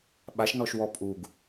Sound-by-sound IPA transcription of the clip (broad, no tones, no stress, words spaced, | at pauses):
ɓaʃnɔʃ wɔpʼuɡ